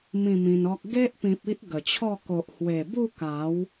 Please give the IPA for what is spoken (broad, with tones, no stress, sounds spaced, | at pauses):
m ĩ˥˧ m ĩ˧ n ɔ˦ k̚ ɡ e˦ ʔ p ĩ˨ p̚ i˦ ʔ ɡ ə˨˩ t͡ɕʰ ɔ˥˧ k o˨ ʔ h w e˨˩ b u˥˧ k a˨˦ w